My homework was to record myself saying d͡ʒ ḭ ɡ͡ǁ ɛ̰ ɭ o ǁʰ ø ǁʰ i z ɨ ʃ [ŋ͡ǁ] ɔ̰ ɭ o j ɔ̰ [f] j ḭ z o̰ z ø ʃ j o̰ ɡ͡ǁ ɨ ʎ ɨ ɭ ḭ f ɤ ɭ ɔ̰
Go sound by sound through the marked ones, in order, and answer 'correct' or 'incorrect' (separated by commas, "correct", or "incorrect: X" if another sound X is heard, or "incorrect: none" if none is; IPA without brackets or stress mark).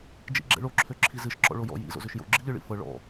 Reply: incorrect: ǁ, incorrect: none